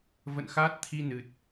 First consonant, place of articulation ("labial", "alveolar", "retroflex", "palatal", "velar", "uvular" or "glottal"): labial